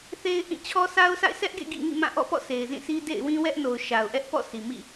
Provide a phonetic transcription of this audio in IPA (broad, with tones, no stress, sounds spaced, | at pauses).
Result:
θ e˦ ɪ̯ ʔ ĩ˦˨ t͡ɕʰ ɔ˦ sʰ a˦ ʊ̯ sʰ a̰˦˨ ɪ̯ sʰ ɛ˦ ʔ ɡ ḛ˦˨ ɡ ḭ˦˨ ŋ ḭ˦˨ m ã˦˨ ʔ ɔ̰˦˨ p ɔ̰˦˨ sʰ e˨ ɪ̯ z ĩ˦˨ sʰ i˦ d ḛ˦˨ ɪ̯ w ĩ˦ w ɛ˦ ʔ n o˨ ʊ̯ ʃ a˨ ʊ̯ ʔ ɛ˦ ʔ p ɔ̰˦˨ sʰ i˨ m ḭ˦˨